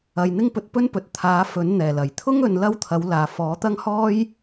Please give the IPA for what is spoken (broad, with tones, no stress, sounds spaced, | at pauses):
ɐ˧ j n̪ ɪ˥ ŋ p ɵ˧ t̚ p ɵ˥ n p ɵ˨ t̚ t̪ʰ aː˨˥ f ɵ˨˥ n n̪ ɛː˨˩ l ɐ˨˩ j t̪ʰ ʊ˥ ŋ ɵ˨˧ n l ɐ˥ w t̪ʰ ɐ˨˥ w l aː˨ f ɔː˨˥ t̪ ɐ˥ ŋ h ɔː˥ j